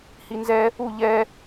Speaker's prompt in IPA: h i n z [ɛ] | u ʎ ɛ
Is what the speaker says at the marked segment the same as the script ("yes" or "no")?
yes